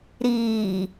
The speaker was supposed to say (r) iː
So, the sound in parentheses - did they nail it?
no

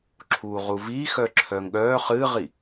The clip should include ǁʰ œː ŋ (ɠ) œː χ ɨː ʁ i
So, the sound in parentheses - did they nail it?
yes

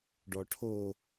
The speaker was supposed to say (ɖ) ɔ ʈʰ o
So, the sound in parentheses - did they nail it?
yes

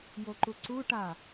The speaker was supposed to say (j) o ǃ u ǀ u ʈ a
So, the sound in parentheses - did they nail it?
yes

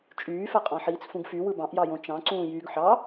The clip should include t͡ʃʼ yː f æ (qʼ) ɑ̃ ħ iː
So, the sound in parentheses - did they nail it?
yes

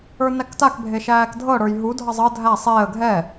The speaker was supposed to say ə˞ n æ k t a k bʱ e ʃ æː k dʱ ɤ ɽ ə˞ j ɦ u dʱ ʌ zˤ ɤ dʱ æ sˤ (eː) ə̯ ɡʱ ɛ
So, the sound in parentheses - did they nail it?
yes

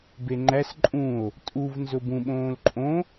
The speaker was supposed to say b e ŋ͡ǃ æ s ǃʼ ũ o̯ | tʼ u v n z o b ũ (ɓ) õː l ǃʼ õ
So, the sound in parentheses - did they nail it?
yes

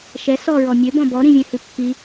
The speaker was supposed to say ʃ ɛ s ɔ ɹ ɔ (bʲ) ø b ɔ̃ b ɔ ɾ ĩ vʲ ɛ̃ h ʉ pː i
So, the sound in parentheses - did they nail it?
no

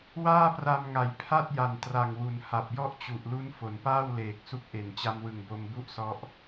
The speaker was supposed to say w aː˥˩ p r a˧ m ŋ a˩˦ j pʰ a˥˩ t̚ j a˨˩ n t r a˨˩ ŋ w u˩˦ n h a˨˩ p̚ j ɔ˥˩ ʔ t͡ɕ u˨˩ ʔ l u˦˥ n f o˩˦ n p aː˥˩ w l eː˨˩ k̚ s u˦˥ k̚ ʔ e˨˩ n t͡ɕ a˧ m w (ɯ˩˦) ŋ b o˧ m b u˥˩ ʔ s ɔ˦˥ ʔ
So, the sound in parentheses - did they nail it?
no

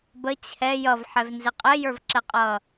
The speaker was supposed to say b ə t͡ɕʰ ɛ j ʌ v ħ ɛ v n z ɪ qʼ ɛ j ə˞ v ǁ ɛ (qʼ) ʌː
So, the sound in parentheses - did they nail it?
yes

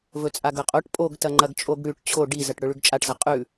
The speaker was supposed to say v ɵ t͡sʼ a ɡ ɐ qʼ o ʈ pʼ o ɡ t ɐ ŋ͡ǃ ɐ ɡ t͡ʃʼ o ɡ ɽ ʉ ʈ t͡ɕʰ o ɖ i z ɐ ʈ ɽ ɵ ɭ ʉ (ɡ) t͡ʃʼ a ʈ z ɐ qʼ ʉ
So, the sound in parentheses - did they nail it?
yes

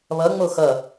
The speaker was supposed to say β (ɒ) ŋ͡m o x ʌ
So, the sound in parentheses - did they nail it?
no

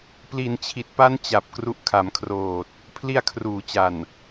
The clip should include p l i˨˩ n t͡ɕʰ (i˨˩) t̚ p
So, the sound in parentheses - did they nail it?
yes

